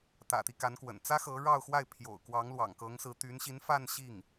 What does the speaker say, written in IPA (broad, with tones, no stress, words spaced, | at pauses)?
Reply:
t̪ä̰˨˩t̪i˦ ka˧˥nkwə̰˨˩n t͡sä˥xɤ˧˥ɻɑ˥˧ʊ̯xwa˥˩ɪ̯ pʰjo̰˨˩ʊ̯kwɑ˧˥ŋ lwɑ̰˨˩ŋkɤ˧˥ŋsɹ̩˧˥ t̪y˧˥nɕi˧˥nfa˥˧n ɕi˥˩ŋ